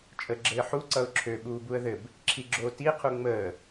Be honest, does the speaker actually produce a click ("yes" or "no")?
yes